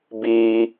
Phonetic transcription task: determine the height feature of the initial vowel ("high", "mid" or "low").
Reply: high